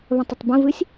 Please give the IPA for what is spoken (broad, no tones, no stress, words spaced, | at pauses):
βə̃tˤətˤbə̃vɨsʲ